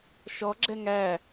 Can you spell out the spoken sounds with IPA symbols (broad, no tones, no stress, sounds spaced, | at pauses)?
ʃ ɔ ɡ͡ǁ ɛ ŋ æ